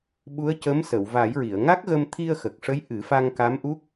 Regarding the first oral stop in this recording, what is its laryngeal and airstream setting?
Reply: implosive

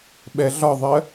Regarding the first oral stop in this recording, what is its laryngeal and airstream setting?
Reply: implosive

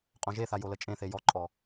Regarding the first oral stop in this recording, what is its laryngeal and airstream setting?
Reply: ejective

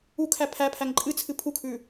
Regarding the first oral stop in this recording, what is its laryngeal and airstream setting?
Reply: aspirated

